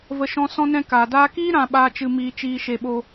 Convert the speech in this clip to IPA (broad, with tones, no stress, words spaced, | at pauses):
və˧ʃɔ̃˧ sɔ̃˧nɛ̃˧ kaː˨daː˧kiː˦ ɾã˧ɓaː˧ t͡ʃɨ˧miː˧t͡ʃiː˧ ʃe˧ɓo˧